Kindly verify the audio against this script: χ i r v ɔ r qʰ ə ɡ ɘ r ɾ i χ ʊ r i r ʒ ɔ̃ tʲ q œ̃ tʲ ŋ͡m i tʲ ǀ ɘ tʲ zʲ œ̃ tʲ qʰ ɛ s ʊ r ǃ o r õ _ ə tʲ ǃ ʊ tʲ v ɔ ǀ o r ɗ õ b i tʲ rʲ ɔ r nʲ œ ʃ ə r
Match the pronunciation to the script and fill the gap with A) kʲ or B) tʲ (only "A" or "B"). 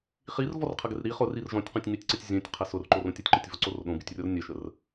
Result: B